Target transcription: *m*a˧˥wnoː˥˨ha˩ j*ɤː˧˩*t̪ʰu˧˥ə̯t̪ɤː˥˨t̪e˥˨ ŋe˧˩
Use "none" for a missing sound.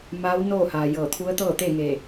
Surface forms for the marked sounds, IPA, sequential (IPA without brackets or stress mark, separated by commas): m, ɤː˧˩